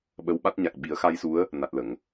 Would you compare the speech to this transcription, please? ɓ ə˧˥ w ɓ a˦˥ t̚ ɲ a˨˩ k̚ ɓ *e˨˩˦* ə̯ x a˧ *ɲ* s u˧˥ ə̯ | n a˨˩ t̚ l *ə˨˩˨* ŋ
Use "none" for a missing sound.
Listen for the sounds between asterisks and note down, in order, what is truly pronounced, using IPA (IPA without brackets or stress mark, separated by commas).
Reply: i˨˩˦, j, ə˨˩˨